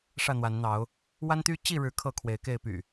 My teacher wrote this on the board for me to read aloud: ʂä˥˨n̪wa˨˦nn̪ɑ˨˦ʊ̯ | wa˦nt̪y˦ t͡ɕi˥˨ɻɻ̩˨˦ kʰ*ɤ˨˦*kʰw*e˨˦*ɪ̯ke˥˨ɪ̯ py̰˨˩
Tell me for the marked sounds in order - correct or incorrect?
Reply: incorrect, correct

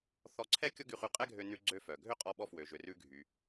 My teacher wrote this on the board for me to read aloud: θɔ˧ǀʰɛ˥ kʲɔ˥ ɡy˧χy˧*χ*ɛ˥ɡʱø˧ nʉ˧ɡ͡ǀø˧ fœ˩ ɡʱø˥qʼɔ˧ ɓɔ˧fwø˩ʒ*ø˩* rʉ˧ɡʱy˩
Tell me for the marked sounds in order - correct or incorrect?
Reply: incorrect, correct

